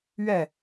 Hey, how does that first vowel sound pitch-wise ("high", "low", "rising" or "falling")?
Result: falling